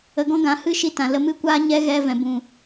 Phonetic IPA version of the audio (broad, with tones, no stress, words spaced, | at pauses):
ə˧ɡɔ̃˦ɡã˨˦ hɨ˦ʃi˧tã˨ lə˧mɨ˦kʷaː˦ ɲɛ˦ɣɛ˧ vɛ̃˨bũ˨